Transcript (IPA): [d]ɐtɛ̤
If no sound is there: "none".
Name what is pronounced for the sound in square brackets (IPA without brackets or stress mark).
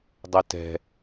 dˤ